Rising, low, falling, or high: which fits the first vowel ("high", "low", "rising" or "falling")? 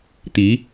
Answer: rising